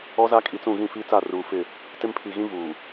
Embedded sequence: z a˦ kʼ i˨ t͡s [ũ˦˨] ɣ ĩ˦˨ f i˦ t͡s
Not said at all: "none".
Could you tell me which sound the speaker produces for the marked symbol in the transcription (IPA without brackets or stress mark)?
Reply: ũ˦˨